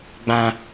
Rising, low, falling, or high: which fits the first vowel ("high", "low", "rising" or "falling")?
high